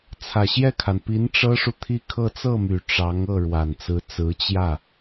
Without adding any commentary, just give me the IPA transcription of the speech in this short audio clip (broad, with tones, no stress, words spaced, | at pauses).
t͡sʰä˨˩ɕjɛ˥˩kʰa˩npi˧˥n ʈ͡ʂɤ˥ʂu˨t̪ʰi˥˧kʰɤ˥˧ t͡sɤ˥˩my˨˩ ʈ͡ʂɑ˧˥ŋɤ˥˩ ɻwa˨˩nt͡sɹ̩˧˥t͡sɹ̩˧˥ t͡ɕjä˥˩